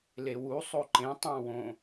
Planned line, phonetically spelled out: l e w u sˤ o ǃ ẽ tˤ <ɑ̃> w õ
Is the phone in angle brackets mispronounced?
no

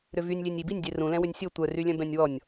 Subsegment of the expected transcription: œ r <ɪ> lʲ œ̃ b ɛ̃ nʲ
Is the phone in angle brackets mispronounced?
yes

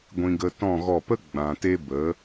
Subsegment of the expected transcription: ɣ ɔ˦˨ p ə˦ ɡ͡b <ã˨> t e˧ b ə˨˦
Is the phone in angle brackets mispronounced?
no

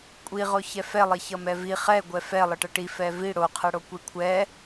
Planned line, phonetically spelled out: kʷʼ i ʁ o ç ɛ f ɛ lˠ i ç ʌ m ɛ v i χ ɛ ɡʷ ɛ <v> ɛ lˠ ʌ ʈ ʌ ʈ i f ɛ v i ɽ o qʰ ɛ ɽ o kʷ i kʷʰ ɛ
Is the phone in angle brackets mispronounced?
yes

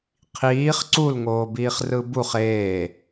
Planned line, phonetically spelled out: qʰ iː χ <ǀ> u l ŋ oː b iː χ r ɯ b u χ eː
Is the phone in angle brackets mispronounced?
no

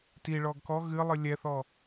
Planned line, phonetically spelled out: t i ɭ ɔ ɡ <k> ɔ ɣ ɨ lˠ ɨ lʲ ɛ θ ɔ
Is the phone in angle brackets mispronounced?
no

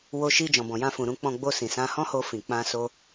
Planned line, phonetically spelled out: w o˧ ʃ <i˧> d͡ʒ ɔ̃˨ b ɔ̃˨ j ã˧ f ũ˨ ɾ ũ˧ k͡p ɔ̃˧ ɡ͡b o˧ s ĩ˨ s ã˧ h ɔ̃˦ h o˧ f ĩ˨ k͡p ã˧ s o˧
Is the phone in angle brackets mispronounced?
no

